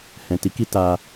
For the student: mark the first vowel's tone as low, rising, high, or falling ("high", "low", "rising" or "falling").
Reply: low